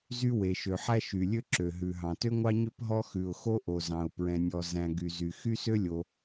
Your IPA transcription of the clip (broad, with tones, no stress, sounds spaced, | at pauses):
z y˥ w e˩ ʃ ø˩ ħ æ˥ ʃ y˩ lʲ ø˥ ǁ ø˩ ɦ ʉ˩ ɦ ɑ̃˩ t ø˥ ŋʷ ɑ˥ ɲ ø˥ p ɦ ɔ˥ x ʉ˩ ʊ̯ x o˥ ʔ o˩ z ɑ̃˩ ʊ̯ p ɹ ɛ̃˩ nʲ ɔ˩ z æ̃˩ ɡ y˩ z y˩ x y˥ s ø˥ lʲ o˩